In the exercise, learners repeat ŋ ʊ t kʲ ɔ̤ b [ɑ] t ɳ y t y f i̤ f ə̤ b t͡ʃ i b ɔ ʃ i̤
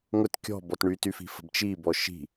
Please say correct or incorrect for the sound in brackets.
incorrect